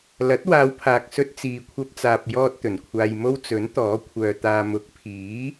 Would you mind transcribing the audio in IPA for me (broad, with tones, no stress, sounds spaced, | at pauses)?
l ɐ˨˥ t̚ w aː˨˧ w pʰ aː˨ k̚ s ɵ˧ t̚ t͡s iː˨ kʷʰ ɐ˧ p̚ t͡s aː˨ p̚ j ɔː˧ t̚ t̪ ɵ˨˩ n kʷʰ aː˧ j m o˥ w t͡s ɵ˨˥ n t̪ ɔː˨˥ kʷʰ œː˨ t̪ aː˨ m ʊ˨˥ k̚ pʰ iː˨˥